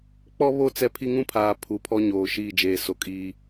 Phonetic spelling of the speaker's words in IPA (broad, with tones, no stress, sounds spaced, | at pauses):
k͡p ɔ˦ β o˦˨ t͡s ɛ˦ pʰ i˦ ŋ ũ˦ pʰ aː˨ pʰ u˨ pʰ ɔ˦ ɲ oː˨ ʃ iː˦˨ d͡ʒ eː˨ s o˨ kʼ iː˦